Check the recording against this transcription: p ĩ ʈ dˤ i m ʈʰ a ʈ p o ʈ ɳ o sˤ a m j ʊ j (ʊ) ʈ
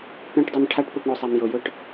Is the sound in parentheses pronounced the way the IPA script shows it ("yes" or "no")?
yes